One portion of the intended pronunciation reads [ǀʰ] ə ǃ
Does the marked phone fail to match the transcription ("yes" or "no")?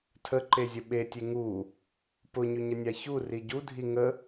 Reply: yes